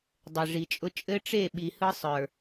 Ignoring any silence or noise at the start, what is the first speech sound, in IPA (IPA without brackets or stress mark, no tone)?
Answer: dˤ